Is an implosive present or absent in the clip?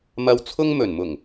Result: absent